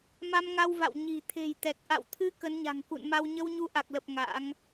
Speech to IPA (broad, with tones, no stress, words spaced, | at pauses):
ma˧mŋa˧wva̰˧˨w ɲi̤˨˩ t̪ʰe̤˨˩jt̪ɛ˨˩k̚ʔa̰˧˨wt̪ʰɨ˧ kə˨˦nɲa̤˨˩ŋkṵ˧˨nma˧w ɲə˧wɲu˧ʔa˨˩k̚lə˨˩p̚ ŋa̰˧˥ŋ